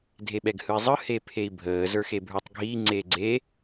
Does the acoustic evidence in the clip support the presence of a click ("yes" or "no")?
yes